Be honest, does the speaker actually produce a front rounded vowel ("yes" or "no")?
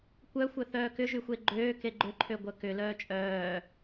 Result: yes